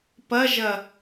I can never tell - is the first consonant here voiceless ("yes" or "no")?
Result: yes